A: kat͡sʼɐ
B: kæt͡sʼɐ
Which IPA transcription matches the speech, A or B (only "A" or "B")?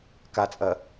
A